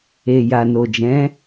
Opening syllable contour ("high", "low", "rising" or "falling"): low